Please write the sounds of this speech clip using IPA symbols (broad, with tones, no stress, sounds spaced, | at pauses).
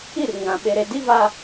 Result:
i˦˨ r ŋ ã˨ ɓ e˨ ɾ e˨ d i˦ v a˦